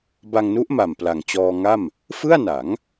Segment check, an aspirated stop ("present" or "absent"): absent